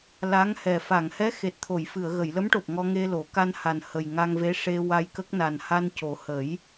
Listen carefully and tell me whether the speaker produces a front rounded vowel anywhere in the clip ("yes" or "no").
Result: no